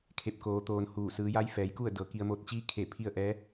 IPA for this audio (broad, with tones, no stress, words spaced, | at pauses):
kʰe˧˥p̚koː˧t̪oː˧n huː˧˩ sɯː˩˧ja˧˥jfɛː˩˧jku˥˨ə̯ dɤː˩ki˧ə̯moː˧˥t̚ t͡ɕiː˧˥kʰe˧˩pʰi˧ə̯ ʔɛː˧˥